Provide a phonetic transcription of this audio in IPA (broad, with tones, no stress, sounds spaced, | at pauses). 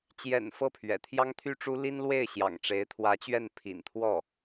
t͡ɕ j ɛ̰˨˩ n f ɤ˥˩ pʰ ɥ ɛ̰˨˩ t̪ʰ j ɑ˥ ŋ t̪ʰ y˥ ʈ͡ʂ u˥ l i˥ n l w e˥˩ ɪ̯ ɕ j ɑ̰˨˩ ŋ ʈ͡ʂ e˧˥ ɪ̯ t̪ʰ w ä˧˥ t͡ɕ ɥ ɛ˥˩ n pʰ ḭ˨˩ n t̪ʰ w ɔ˥˩